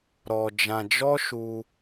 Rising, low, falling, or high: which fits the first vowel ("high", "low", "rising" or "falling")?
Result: low